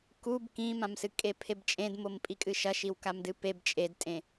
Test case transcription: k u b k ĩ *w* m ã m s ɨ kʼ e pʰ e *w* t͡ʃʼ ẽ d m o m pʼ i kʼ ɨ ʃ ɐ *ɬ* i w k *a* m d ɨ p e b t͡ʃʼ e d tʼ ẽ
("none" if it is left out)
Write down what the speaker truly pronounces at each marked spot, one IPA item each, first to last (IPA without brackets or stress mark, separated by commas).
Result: none, b, ʃ, a